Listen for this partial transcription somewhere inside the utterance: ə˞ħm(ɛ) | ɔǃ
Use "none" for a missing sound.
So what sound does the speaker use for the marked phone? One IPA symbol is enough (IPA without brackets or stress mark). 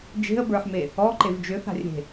e